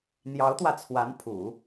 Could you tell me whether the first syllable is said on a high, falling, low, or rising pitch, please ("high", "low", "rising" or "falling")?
rising